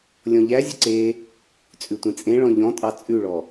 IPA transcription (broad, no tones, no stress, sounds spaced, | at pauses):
lʲ ɔ̃ ʎ æ zʲ ə ǀ e | t͡sʼ ʉ tʷ ẽ t͡sʼ ẽ ɭ ɔ̃ ʎ ɔ̃ tʼ ɑ t͡sʼ ʉ ɭ ɔ